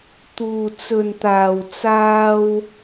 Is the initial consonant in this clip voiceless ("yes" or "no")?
yes